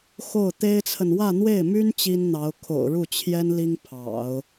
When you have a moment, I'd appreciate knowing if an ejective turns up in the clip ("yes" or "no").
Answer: no